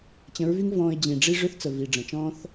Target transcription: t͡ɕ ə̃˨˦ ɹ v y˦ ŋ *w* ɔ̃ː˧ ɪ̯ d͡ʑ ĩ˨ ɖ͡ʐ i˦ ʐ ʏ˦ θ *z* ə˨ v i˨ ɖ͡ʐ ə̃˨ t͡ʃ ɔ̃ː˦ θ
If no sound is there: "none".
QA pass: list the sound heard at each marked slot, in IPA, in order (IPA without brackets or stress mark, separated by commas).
v, t͡s